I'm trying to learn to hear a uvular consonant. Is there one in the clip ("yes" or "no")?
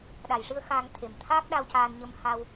no